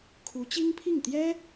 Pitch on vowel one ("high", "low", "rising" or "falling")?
rising